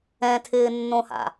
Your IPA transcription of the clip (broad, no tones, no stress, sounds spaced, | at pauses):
ɛ̃ tʰ ɪː nː õ h a̰